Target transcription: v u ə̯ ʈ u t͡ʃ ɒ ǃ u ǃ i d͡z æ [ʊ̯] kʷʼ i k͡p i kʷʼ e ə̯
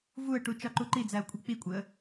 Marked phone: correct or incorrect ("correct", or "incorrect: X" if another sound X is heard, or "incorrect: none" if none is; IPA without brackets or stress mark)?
correct